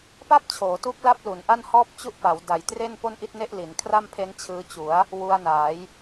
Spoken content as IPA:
pa˥˩p̚t͡ɕʰoː˩˦tu˦˥k̚la˦˥p̚ lu˩˦nʔa˥˩nhɔː˥˩p̚ t͡ɕu˥˩ʔpa˩˦w da˩˦jtre˥˩n po˥˩nʔi˥˩t̚ne˥˩ʔ li˩˦nkʰra˥˩mpʰe˦˥n t͡ɕʰɯː˧t͡ɕu˩˦a̯ | wu˧a̯naː˩˦j

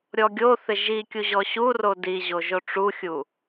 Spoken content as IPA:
ɾʲɔɡʲoθɪ ʒi kʲuʑɔɕuro diʑo ʒoʈ͡ʂuxʲu

